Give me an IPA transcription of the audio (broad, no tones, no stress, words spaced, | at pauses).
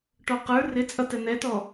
ʈɔqə˞ rɪt͡sʼʌ tɛn̪ɛtɔ